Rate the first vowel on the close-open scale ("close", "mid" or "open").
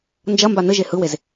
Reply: open